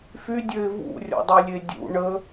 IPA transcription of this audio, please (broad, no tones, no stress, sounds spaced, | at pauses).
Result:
f y dʲ ø ɪ̯ v ṵ rʲ ɔ̰ dˤ i lʲ e dʲ ṵ ɳ ə